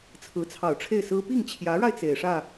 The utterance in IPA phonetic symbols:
t͡sʰ ɹ̩˧˥ t͡sʰ ɑ˨˩ ʊ̯ ʈ͡ʂʰ e˥˩ ɪ̯ s ɹ̩˥ p i˥˩ ŋ t͡ɕʰ j ä˧˥ ɻ a˧ ɪ̯ t͡s e˨˩ ɪ̯ ʂ ä˥˩

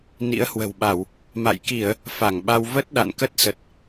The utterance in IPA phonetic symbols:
n ḭ˧˥ ə̯ h w ə̤˨˩ w ɓ a˧˩˨ w | m a̰˧˨ j k i˧˩˨ ə̯ | f a˧˩ ŋ ɓ a˧ w v ə˦˥ t̚ ɗ a̰˧˨ n k ə˦˥ t̚ s ə˨˩ t̚

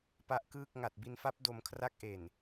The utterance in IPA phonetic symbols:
p a˦˥ ʔ k ɯː˥˩ k̚ ŋ a˨˩ t̚ b i˧ n f a˦˥ p̚ d o˧ m kʰ r a˦˥ k̚ ʔ e˨˩ n

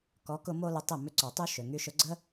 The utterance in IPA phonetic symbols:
k ɔ˨˦ k ʊ˧ m o˦ l ʊ˧ tˤ ɪ˦˨ m ʏ˧ ǀ ɔ˨ tˤ y˦ ʃ ø˨ ŋ y˧ ʃ ʊ˧ ɡ͡ǀ ə˦

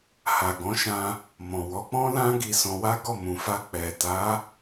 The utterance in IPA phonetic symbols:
h a˨ ɡ ɔ̃˨˦ ʃ ã˧ | m ɔ̃˨ w ɔ˨˦ k͡p ɔ̃˦ l ã˦ ɡ i˧ s ɔ̃˧ w a˦ ɡ ɔ˦˨ m ũ˨ f a˧ k͡p ɛ˨ t a˨˦

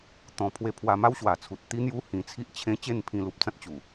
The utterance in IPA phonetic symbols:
t̪ ɔ̃˨˩ pʰ w e˧ pʰ w a˧ m a˦ w ɕ w a˨˩ t͡sʰ u˨ t̚ t̪ i˦ n̪ j u˦ h ĩ˧ t͡sʰ i˦ ʔ t͡ɕʰ ẽ˦ t͡ɕ e˥˧ n pʰ ĩ˧ l u˨ p̚ t͡s ã˦ t̚ t͡ɕ u˨˩

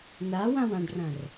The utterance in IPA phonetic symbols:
n a w ã w ã ɖ r ɐ̃ r

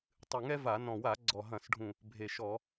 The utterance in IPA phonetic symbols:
tˤ ɨ˨˩ ŋ ɛ˦ v a˧˩˧ n ɔ̃˨˩ w a˧˩˧ ɡ͡ǀ ɔ˨˩ ɦ ɐ̃˧˩˧ s ɖʱ ũ˨˩ | bʱ e˨˩ ʃ ɔ˧˩˧

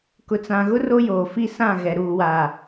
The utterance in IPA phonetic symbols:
k ʊ˨ t͡s ã˨ ɣ ʊ˦ r o˦ j oː˨ f i˦ s ã˦˨ ɣ ɛ˨ ɾ uː˨ w aː˨

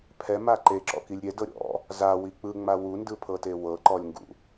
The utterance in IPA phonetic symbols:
pʰ ɛ m a ǃ e ǁ ɔ̰ k i lʲ ɾʲ ɛ d ɤ ɾʲ ɔ̰ | z a w i k͡p ɯ ŋ͡m a w u n d ɯ pʰ ɤ t e w ɤ ǃ ɔ lʲ ŋ ɡ ṵ

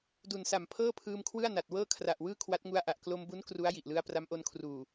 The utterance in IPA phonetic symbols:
d u˨˩ n s a˨˩ m pʰ ɤː˥˩ pʰ ɯː˧ m kʰ w ɯ˥˩ a̯ n a˨˩ t̚ w ɤː˥˩ kʰ r a˨˩ ʔ w ɯː˥˩ kʰ w a˦˥ t̚ ŋ u˦˥ a̯ ʔ a˨˩ ʔ k l o˧ m b u˦˥ n k r u˦˥ a̯ j i˨˩ ʔ l ɯ˦˥ a̯ p r a˦˥ m ʔ o˧ n kʰ r uː˨˩

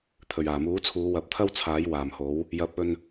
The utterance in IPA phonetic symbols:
t̪ʰ ɵ˨˩ ɥ aː˨˩ m uː˨˥ t͡sʰ uː˨˧ w ɐ˨ p̚ t̪ʰ ɐ˥ w t͡sʰ aː˨˥ j w aː˨˩ m h o˨˥ w | j ɐ˨˥ p̚ ɵ˧ n

